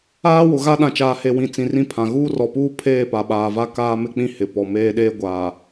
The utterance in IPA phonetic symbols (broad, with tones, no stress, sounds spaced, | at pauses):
aː˦ w ʊ˨ ɣ a˦ ɗ ã˨ t͡ʃ aː˨ h e˨ w ĩ˨ t͡s ĩ˨ r ĩ˦ pʰ ã˨ ɣ uː˦ r ɔ˨ p uː˦ pʰ eː˦˨ p a˨ ɓ aː˨ v a˦ k aː˦ m ɪ˦ k͡p ĩ˦ h ɪ˨ p ɔ˨ m eː˦ ɗ eː˦ ɡʷ aː˨